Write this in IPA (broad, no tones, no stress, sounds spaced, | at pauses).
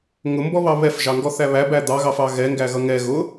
ŋ ʊ m b ɔ β ɑ β ɛ f ʒ ɑ ŋ ɡ ɔ θ æ β æ b æ d̪ ɑ ɣ ɑ f ɑ ɣ ɛ ŋ ɡ æ ɣ ʌ ŋ ɛ ɣ ʊ